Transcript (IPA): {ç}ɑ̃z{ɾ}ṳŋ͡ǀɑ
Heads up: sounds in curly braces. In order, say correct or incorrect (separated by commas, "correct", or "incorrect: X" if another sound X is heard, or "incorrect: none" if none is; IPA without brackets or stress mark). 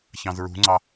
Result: correct, incorrect: ɹ